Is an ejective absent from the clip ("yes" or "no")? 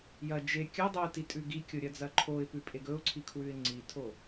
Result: no